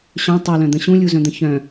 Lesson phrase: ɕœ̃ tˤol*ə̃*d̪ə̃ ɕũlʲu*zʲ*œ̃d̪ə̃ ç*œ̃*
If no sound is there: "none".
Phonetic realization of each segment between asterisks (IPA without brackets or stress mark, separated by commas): œ̃, z, œ̃